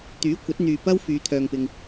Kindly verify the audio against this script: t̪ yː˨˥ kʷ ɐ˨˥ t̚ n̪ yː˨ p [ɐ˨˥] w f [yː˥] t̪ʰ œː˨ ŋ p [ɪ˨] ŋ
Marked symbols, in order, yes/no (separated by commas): no, no, yes